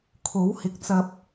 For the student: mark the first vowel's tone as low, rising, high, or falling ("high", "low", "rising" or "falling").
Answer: rising